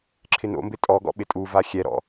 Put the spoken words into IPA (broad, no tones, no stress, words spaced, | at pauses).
ǁʰɪno̰mbɪ tʼɔɡɔ̰ ɓɪtʼuva xʲɛɾɔ̰